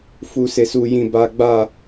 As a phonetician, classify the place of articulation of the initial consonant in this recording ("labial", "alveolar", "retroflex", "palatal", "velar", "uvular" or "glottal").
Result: labial